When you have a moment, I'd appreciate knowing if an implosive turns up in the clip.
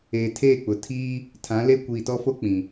no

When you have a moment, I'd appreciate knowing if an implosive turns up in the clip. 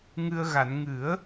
no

